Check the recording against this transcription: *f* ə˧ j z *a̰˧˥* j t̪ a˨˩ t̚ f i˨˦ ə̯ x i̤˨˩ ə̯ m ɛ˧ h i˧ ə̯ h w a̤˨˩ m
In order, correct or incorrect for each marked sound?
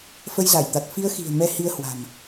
correct, incorrect: a˧˩

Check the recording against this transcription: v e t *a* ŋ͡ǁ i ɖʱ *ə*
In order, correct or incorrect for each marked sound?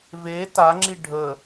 correct, correct

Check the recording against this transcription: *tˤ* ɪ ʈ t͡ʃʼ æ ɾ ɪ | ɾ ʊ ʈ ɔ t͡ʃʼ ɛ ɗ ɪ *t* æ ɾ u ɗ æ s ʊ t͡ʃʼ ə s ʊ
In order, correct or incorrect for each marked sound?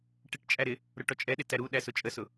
incorrect: ʈ, correct

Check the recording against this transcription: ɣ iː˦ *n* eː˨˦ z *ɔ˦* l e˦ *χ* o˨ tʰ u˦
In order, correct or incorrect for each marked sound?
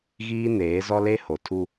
correct, correct, incorrect: h

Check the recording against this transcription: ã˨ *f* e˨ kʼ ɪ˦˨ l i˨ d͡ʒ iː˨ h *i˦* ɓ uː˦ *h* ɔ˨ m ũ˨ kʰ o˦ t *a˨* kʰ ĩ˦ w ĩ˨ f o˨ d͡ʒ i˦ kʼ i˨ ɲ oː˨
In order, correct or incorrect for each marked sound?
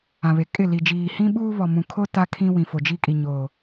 incorrect: β, incorrect: ĩ˦, incorrect: β, incorrect: a˦

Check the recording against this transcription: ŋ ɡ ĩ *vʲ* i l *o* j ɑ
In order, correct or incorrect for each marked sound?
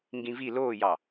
incorrect: v, incorrect: oː

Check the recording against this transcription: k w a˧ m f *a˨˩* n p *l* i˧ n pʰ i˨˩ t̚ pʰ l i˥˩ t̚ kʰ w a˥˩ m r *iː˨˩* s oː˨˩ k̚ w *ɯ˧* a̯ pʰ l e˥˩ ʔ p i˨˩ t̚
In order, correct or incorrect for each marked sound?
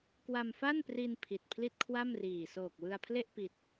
incorrect: a˥˩, incorrect: r, correct, correct

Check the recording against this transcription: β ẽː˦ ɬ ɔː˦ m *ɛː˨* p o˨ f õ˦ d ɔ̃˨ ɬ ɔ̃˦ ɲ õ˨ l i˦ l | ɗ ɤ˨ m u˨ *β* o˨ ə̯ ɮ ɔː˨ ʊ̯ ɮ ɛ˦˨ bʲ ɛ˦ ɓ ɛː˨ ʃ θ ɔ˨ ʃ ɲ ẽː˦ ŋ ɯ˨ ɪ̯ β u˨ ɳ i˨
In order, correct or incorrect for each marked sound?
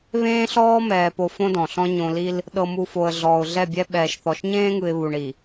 correct, incorrect: f

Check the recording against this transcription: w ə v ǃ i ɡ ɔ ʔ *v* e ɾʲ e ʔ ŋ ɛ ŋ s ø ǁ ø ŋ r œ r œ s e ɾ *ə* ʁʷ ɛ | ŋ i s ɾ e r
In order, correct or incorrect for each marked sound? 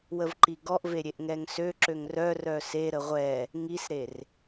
correct, correct

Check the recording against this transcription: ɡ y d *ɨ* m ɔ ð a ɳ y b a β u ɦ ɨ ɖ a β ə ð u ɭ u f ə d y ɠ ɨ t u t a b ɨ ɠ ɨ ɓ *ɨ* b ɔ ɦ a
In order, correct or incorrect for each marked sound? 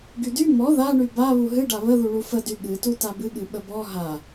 incorrect: y, incorrect: ə

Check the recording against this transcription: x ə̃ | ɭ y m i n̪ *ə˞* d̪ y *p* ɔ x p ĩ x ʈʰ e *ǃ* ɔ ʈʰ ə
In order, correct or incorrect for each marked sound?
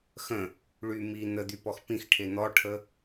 incorrect: ə, correct, incorrect: n̪

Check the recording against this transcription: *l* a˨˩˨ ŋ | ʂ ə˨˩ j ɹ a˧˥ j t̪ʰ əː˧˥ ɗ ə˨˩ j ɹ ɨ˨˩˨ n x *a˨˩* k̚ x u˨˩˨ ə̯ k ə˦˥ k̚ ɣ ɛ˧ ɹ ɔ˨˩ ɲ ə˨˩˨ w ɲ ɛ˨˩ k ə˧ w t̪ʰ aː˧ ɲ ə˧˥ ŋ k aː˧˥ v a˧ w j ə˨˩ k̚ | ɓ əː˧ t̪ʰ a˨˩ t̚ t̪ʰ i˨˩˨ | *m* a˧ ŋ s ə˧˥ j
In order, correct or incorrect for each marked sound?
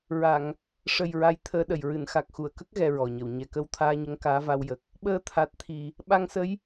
incorrect: ɹ, correct, incorrect: ɓ

